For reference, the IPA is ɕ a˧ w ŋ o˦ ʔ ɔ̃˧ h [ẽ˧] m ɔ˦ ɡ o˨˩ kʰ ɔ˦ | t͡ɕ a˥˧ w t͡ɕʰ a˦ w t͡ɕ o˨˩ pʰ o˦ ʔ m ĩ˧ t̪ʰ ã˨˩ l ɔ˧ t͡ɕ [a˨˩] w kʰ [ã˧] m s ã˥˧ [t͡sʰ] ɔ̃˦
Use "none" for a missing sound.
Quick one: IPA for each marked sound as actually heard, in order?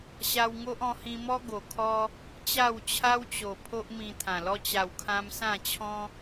ĩ˧, a˨˩, ã˧, t͡ɕʰ

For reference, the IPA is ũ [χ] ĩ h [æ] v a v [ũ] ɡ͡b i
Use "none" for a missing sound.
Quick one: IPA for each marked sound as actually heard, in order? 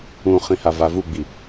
χ, a, u

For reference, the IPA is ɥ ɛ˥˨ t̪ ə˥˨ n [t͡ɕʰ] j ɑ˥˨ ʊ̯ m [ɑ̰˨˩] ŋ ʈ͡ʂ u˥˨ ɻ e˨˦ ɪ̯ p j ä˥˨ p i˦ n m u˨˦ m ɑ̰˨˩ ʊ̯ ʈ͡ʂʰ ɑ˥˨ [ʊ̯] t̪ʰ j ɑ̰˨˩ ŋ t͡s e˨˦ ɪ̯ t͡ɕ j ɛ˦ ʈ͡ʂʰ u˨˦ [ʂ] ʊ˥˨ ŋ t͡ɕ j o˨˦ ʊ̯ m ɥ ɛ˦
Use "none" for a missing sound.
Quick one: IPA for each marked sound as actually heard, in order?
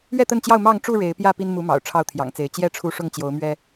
t͡ɕ, ɑ˥˨, ʊ̯, ʂ

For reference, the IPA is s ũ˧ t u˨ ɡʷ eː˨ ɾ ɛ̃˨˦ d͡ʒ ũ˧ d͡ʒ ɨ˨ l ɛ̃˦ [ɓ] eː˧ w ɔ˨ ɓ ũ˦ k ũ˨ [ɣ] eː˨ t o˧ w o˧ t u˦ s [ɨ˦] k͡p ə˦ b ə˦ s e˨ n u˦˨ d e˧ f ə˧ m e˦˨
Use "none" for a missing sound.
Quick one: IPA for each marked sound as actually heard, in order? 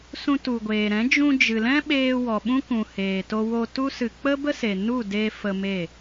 ɓ, h, ɨ˧

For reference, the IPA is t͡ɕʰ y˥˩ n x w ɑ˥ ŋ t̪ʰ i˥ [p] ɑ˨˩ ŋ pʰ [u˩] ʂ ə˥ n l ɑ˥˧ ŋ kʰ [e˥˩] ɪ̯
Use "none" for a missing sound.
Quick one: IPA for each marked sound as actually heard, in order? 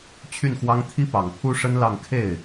p, u˥, e˥˩

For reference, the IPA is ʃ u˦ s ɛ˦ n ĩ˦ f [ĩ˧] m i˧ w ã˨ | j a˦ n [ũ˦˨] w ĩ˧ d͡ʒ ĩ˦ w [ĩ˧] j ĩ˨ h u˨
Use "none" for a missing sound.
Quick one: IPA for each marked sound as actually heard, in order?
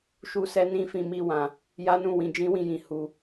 ĩ˧, ũ˦˨, ĩ˧

